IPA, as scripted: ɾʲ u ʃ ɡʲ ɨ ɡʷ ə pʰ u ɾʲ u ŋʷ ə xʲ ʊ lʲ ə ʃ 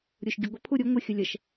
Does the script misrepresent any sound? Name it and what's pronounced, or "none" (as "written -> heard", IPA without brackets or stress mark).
none